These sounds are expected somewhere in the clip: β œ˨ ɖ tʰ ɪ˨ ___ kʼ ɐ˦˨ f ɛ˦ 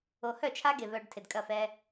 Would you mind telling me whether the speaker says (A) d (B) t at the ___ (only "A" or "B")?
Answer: A